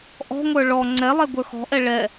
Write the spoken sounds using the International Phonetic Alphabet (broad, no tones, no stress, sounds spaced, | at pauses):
ʔ ɔ̤ ŋʷ ə˞ ɭ ɔ ŋ͡ǀ ɛ lˠ ɛ ɡʷ ə˞ x ɔ̤ ʔ ɛ ɭ ɛ